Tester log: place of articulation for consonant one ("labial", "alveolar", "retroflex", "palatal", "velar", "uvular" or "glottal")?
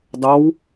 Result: alveolar